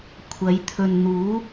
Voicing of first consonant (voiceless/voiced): voiceless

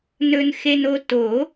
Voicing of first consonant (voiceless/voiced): voiced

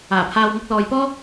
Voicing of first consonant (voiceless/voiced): voiceless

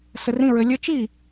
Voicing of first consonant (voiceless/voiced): voiceless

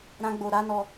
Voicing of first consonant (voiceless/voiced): voiced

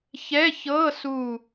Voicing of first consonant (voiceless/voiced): voiceless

